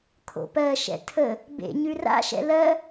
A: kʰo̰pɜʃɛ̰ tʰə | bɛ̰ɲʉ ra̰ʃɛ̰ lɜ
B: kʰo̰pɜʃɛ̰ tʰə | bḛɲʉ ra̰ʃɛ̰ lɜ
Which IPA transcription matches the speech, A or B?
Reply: B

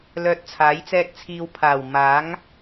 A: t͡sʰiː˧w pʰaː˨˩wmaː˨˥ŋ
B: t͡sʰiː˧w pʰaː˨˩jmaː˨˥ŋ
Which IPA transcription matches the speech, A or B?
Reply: A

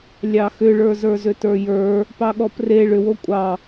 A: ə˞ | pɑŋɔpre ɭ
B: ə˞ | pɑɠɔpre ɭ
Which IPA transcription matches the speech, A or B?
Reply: B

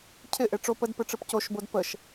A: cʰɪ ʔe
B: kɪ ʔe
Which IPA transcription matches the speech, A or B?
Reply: A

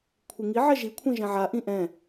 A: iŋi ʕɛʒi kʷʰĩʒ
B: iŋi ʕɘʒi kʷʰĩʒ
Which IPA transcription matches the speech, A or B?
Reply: A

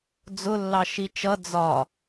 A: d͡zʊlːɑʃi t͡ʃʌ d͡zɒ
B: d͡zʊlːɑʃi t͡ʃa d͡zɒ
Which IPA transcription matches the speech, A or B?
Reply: A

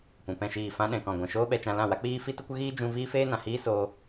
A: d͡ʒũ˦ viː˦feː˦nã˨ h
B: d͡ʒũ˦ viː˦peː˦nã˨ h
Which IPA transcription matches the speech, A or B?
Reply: A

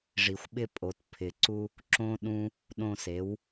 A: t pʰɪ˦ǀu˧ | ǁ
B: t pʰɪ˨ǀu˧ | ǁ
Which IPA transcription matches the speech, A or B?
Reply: B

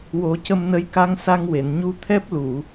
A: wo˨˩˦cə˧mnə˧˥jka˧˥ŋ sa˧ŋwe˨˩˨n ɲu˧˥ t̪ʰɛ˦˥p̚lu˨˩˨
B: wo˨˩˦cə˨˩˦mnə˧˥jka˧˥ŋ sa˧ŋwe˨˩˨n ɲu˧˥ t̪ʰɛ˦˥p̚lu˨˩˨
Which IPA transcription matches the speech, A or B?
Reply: A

